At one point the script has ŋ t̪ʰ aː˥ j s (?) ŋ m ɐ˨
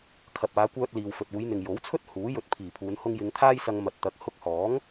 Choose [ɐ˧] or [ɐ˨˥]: ɐ˧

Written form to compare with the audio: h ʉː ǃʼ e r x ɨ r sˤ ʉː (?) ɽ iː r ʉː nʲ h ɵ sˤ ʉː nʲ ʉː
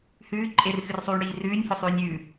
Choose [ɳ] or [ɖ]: ɳ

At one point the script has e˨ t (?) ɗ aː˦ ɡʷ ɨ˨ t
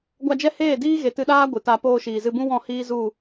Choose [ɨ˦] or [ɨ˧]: ɨ˧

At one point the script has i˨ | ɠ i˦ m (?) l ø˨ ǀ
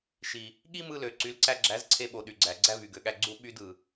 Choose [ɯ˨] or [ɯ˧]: ɯ˧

